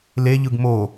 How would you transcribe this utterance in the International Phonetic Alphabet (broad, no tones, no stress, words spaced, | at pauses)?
leʎɯɡ mo